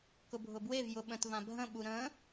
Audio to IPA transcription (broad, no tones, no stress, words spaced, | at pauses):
kʊbʱʊbwev jʊɓə̃tvã bʱə̃ɓu ɾə̃